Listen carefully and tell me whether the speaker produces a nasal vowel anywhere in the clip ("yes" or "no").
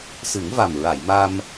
no